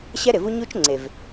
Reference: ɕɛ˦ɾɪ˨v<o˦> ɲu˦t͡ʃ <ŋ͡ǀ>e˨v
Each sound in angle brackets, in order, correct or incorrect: incorrect: u˦, correct

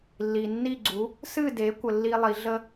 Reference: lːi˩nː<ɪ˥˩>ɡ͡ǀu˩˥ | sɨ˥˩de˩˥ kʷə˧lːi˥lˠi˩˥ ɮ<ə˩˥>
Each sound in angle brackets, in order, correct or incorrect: incorrect: i˥˩, incorrect: ə˥

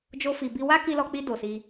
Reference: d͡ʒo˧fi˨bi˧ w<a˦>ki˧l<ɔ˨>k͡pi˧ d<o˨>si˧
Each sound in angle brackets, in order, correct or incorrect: correct, incorrect: ɔ˧, correct

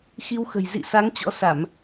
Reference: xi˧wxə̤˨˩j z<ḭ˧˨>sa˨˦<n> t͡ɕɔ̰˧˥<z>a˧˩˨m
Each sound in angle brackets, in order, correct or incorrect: correct, incorrect: ŋ, incorrect: s

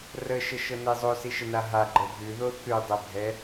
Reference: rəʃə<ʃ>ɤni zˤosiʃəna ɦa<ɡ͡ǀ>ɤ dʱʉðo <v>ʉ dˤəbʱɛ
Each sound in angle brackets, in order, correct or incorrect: correct, incorrect: ɡ͡ǃ, incorrect: θ

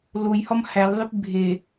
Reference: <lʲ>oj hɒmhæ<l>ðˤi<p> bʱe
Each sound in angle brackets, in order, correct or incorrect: incorrect: l, correct, correct

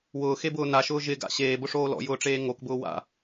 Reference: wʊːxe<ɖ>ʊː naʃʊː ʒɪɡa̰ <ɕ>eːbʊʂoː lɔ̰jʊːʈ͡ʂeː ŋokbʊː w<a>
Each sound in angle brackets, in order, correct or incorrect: incorrect: b, correct, incorrect: a̰

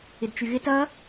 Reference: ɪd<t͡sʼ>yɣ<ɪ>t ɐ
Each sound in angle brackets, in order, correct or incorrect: incorrect: t͡ʃ, correct

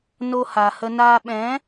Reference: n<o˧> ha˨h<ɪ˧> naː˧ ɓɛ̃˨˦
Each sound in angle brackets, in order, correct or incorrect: correct, incorrect: ə˧

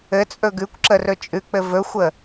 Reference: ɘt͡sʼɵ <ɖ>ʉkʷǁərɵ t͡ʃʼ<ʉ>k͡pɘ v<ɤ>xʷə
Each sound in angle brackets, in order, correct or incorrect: incorrect: ɡ, correct, incorrect: ɵ

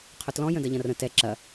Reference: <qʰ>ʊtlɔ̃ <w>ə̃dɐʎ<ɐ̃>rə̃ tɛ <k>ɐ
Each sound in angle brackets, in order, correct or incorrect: correct, incorrect: j, correct, incorrect: ǁ

